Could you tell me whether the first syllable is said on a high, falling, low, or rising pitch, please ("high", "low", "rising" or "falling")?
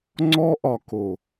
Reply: high